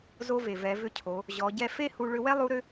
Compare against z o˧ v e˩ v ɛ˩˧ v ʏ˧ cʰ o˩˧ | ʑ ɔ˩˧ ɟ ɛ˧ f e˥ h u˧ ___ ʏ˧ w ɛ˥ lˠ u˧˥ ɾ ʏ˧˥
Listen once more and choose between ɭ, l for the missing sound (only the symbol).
ɭ